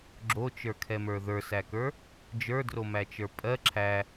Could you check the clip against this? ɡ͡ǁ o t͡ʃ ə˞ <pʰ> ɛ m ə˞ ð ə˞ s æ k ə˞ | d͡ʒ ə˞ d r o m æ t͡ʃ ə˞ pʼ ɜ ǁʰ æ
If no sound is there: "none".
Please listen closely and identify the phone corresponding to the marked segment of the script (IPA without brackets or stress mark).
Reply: kʰ